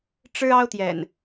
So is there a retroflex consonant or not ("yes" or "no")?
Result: yes